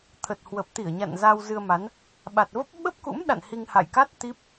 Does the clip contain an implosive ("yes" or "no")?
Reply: yes